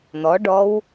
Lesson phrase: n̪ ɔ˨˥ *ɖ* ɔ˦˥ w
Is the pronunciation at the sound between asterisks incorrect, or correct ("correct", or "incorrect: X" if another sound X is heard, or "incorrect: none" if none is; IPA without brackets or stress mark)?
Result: correct